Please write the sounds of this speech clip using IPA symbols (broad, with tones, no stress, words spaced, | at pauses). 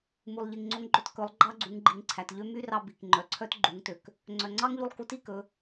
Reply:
mu˩lˠʎi˩ŋŋ͡ǀo˧ŋɡ͡ǃø˧t kɵ˩˧lˠ ɡ͡ǃɑ˥ɡ͡ǀu˩˧ŋɡ͡ǃi˩ŋǀʰæ˩t ʎø˥ my˥rɑ˧ bi˩k ŋ͡ǃœ˩ǀʰœ˥t ɡ͡ǃu˩˧ŋtø˩k | ŋ͡ǀœ˩ŋ͡ǀɑ˥ŋʎu˧lˠ ku˧˥ti˧kɵ˩˧